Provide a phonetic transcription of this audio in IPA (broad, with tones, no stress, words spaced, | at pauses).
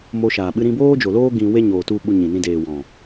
mo˧ʃaː˨ɓɨ˦ ɾĩ˧boː˦d͡ʒo˨loː˦ ɡĩ˧ we˦ɲoː˨tu˧ ɓu˧ɲĩ˨nĩ˧deː˨ wɔ̃˨